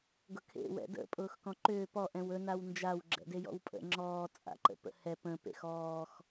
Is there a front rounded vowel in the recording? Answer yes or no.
yes